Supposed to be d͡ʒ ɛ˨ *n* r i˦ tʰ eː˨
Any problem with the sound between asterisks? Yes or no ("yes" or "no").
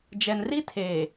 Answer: no